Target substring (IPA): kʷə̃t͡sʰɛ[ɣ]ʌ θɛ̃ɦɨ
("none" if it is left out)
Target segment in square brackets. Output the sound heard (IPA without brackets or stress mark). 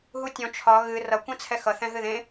x